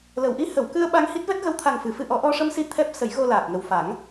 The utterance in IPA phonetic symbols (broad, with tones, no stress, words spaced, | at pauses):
lə˨˩˨wʔi˧˥hə˨˩˨wkɨ˧ə̯ ɓa˧ŋhi˦˥t̚vɛ˦˥t̚ ɣə˧˥wt̪ʰa˨˩ŋfɨ˨˩˨ fɨ˧ʔɔ˨˩˦ ʔɔ˧ʂə˧msi˧ t̪ʰɛ˦˥p̚ sə˨˩˦jɣo˧laː˨˩k̚ ŋə˨˩w fa˨˩˦ŋ